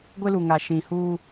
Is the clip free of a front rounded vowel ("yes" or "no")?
yes